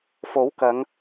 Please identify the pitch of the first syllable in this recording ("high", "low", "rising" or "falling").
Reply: rising